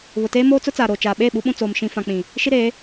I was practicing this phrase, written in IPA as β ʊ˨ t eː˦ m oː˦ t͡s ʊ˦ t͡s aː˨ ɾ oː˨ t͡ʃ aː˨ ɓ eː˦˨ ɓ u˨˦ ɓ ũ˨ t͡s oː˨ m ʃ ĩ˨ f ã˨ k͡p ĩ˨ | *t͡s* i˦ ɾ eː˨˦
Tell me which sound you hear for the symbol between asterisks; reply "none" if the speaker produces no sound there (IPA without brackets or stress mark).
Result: ʃ